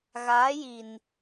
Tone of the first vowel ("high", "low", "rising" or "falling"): rising